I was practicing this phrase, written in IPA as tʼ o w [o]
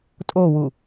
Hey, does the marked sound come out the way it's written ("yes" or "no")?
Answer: no